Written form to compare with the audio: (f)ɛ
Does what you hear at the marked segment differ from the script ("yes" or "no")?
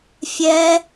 yes